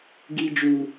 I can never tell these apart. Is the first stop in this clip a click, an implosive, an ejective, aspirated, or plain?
plain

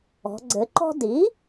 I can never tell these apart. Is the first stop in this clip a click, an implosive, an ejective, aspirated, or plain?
click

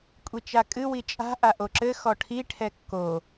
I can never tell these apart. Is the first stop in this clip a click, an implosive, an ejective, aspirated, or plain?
ejective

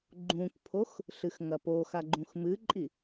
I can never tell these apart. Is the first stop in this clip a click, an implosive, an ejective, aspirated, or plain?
click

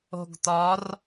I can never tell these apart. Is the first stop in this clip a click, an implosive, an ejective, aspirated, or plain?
plain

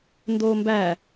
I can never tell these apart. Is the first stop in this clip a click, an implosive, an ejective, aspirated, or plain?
plain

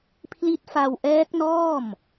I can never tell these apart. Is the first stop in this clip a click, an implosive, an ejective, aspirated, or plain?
aspirated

